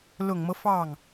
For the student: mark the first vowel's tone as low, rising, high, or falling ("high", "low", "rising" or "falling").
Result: low